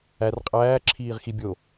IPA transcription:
æ r qʼ æː ǁʰ iː ʁ x i bʲ o

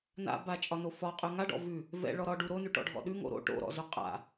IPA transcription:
n a̰ b a t͡ʃʼ ɒ n o f ɒ qʼ ʉ ŋ a ɖ ɔ̰ v ʉ | v ɛ̰ ɭ ɔ ɾ ɒ ɖ u ɾ o n ʉ ʈ ɔ̰ ɖʱ ɔ̰ ɗ ʉ ŋ o̰ ɾ o̰ ʈ o̰ ɾ ɔ̰ z ʉ qʼ a̰

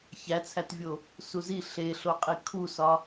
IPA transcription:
ç æ t͡sʰ æ t vʲ o | s u z i ɬ e ɬ o qʼ i kʰ u s ɒ

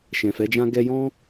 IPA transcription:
ʃ ɛ̃˨ f ɛ˨˦ d͡ʒ ã˦ ɡ ɛ˧ j ɔ̃˦

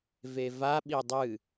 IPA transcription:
v e v a ɓ i dˤ ɨ

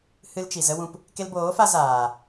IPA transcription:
h ɨ˦ l t͡ʃ i˨ z ə˦ w ũ˧ p | k e˧ l b oː˨˦ f a˧ z aː˨

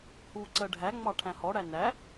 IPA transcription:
h uː ǀ ɜ ɖʱ æ ŋ͡m ɑ ʈʰ æ̃ h ɔ ɽ æ n æ

